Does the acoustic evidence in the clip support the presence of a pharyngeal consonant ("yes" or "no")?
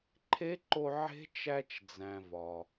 yes